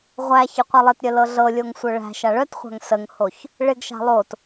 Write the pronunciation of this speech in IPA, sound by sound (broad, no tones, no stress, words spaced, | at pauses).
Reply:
ʁʷæ çɪqʷalˠɪtɾʲə lɤɮɤlʲoŋ sʷœɭæ̤ʃa ɭœtχʷa̤ŋ səŋhoç | ɭɪɡʃa̤ lˠot